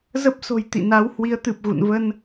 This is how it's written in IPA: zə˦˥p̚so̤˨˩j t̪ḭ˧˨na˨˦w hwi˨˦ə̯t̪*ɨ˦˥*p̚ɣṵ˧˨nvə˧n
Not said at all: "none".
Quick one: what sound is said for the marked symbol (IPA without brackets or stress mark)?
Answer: ɨ˨˩